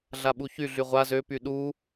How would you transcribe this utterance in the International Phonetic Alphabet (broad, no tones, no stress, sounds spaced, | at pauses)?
ɮ a ɓ u ç y ɮ y ʁʷ a z ø p y ɗ u